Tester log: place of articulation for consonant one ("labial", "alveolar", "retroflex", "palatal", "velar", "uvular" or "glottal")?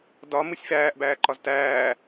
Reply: alveolar